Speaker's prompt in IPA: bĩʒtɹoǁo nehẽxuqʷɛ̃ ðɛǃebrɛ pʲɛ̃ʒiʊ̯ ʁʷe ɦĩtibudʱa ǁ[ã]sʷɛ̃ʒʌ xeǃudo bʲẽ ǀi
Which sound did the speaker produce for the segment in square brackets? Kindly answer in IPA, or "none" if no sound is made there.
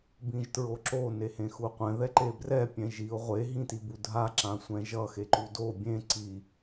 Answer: ã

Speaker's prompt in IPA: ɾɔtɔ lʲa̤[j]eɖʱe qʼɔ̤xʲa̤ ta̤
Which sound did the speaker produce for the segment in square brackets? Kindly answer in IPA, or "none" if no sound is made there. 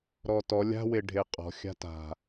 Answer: w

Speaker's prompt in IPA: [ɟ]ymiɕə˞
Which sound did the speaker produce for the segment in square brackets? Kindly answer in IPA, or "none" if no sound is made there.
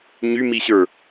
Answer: ɲ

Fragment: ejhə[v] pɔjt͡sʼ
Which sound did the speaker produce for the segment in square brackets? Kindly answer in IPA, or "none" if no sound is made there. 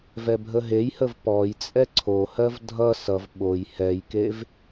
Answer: v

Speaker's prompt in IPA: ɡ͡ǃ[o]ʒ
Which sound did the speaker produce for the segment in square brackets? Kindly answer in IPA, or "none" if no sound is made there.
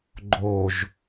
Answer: o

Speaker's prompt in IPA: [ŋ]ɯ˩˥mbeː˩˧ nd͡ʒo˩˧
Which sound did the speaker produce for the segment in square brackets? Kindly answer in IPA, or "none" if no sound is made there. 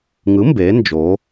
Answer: ŋ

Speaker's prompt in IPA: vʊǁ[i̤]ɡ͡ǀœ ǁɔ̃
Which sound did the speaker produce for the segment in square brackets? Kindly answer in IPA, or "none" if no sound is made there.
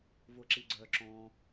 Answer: i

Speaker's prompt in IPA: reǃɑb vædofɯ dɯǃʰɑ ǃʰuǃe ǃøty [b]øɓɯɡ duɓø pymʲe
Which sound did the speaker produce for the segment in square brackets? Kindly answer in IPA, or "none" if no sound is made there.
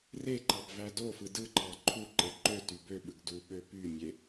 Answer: b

